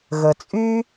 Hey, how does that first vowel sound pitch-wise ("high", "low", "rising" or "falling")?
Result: low